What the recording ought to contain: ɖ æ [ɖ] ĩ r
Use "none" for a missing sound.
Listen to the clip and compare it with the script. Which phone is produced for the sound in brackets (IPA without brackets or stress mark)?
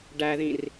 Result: ð